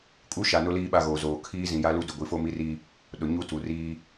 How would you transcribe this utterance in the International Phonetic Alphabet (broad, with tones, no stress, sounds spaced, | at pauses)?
kʼ u˦ ʃ a˨ n ʊ˦ l iː˦ ɓ a˦˨ ɣ oː˨ z oː˨ kʰ iː˦ z ĩ˨ j a˦ l u˦ d ʊ˨ ɡʷ i˨ f o˦ m i˦ r i˦ | ɗ ʊ˨ ɲ u˦ t u˨ r iː˦